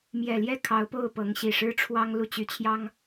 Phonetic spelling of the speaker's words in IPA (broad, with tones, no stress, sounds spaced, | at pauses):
m j ɛ˨˩ l j ɛ˥˩ kʰ ɑ˧˥ ʊ̯ p o˥˩ ʊ̯ p ɤ˧˥ ŋ ɕ i˨˩ ʂ ɻ̩˥ ʈ͡ʂʰ w ɑ˥ ŋ l u˥˩ t͡ɕ y˥ t͡ɕʰ j ɑ˥ ŋ